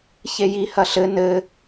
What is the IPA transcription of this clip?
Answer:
ç e j i h ɐ ɬ ɘ n ɘ

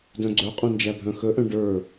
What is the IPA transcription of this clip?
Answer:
d œ̃ ɡ͡ǀ œ qʼ œ̃ n d͡ʒ æ bʱ œ̃ x ə ʔ œ̃ ɖ ə˞

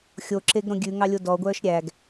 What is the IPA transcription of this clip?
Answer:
xʲ o ǁ e ɡ ɾ õ ɡʲ ʉ ŋ ɑ lʲ o d ɔ ɡʷ œː ʃ ɾʲ æ ɡ

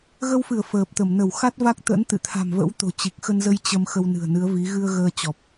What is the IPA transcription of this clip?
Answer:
ɣ ə˧ w f ɨ˧˩ ə̯ f əː˨˩ p̚ t̪ ə˧˩ m n ə˧˩ w x a˦˥ t̚ v a˦˥ k̚ t̪ ə̰˧˥ n t̪ ɨ̰˧˨ t̪ʰ a̤˨˩ m v ə̰˧˥ w t̪ o̤˨˩ t͡ɕ i˨˩ k̚ x ə˧ n z ə˧ j t͡ɕ ə˧ m x ə˧ w n ɨ̤˨˩ ə̯ n ɨ˨˦ ə̯ v i˨˦ ɣ ɨ˧ ə̯ ɣ əː˧ t͡ɕ ɔ˨˩ p̚

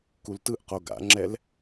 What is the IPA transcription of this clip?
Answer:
k u l t ɯ ʔ q o ɡ a̰ ŋ͡ǁ ɛ l

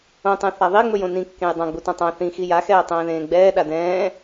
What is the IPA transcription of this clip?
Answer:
õ tˤ ɛ̃ θ a ðˤ i ŋ͡m ɵ j õ n ĩ kː ẽ j dˤ ã ɡ͡b u t ã tˤ ã θ ĩ x i j a x ɛː tˤ ɛ̃ː ð ẽː ɡ͡b ɛː ɗ a d ɛ̃ː

